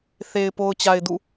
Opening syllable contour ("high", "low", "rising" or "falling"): low